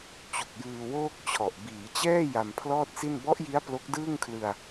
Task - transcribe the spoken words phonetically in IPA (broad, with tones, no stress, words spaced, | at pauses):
t͡ɕu˨˩k̚jɯː˧woː˥˩k̚t͡ɕʰɔ˨˩ʔ biː˩˦t͡ɕɛː˥˩ ja˧mpʰlɔː˥˩t̚si˥˩n bɔ˦˥ʔji˦˥a̯ plo˦˥k̚dɯː˥˩ŋkʰlɯ˧a̯